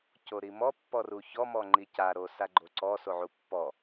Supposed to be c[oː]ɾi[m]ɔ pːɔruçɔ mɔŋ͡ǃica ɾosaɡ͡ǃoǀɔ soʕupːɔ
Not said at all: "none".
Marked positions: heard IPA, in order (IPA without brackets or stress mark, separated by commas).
o, m